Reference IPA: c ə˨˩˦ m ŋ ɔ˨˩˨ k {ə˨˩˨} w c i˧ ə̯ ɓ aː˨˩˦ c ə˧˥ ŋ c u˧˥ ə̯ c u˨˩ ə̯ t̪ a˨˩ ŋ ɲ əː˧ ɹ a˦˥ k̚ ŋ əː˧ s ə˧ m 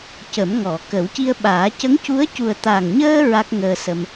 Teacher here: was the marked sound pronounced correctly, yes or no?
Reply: no